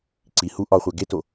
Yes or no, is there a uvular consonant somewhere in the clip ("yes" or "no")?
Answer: yes